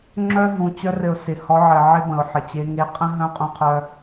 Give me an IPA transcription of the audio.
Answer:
ŋ͡ǁ œ˦ ɦ ũ˨˦ t͡ɕ œ˧ r ɘ˨ ʊ̯ s ɪ˨ h ɔ˧ ʕ ɘ˨ ʕ ɪ˦ b ə̃˨ ʊ̯ ħ ɪ˨ t͡ɕ e˧ ŋ e˧ qʼ ə̃˦ ɦ œ̃˦ qʼ ũ˦ qʰ œ˦

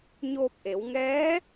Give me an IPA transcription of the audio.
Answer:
ɲ oː˧ p̚ ʔ e˩˧ w ŋ ɛː˧˥

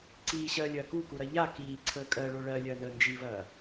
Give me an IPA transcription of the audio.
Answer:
ǀ iː ɕ ɜː lʲ ɐː k u k u ɾ ɐ ʎ a k iː ǀʰ əː kʼ ɜ ɭ o ɭ ɜ lʲ ɐː n əː n d͡ʒ i v ɐː

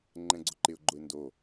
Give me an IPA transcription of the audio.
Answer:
ŋ͡ǃ ɛ̃ ɡ͡ǀ ʊ ǃ ɪ ʊ̯ ɡ͡ǃ ʊ ɪ̯ n d o

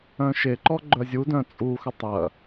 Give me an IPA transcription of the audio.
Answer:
œ̃ ʃ e ǃ ɔ ɡ͡ǃ œ zʲ u d œ̃ t͡sʼ u x ʏ tˤ ɐ

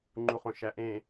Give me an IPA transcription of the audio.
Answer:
ŋ͡ǃ u χ õ ʃ æ ʔ ẽ

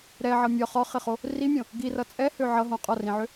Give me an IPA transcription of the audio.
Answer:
ɾ ɛ ʕ ʌ mʲ ɒ χ ɒ χ ɪ χ o | r i mʲ õ | ɡ i r ʌ t͡sʼ ɛ h ø ʕ ʌ ɦ õ qʼ ɒ r ĩ ʕ ø

